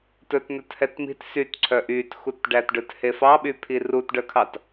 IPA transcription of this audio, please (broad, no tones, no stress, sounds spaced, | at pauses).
t ɵ t n ɵ t h ɛ t m i̤ t s y t ǀʰ œ ʔ y t x u t ɖ æ t ɖ ɵ t h e f ɑ ɓ y pʰ i r u t ɖ œ kʰ ɑ t